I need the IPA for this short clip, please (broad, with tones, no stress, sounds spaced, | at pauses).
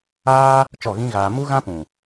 aː˦ | t͡ʃ ɔ˦˨ ɣ ĩ˦ ɣ aː˧ m u˦ ɣ ã˦ p ũ˨